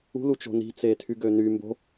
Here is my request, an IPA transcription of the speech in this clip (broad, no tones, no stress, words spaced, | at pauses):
ṳlut͡ʃo̤ ni̤t͡setʰyɡø ny mbo̤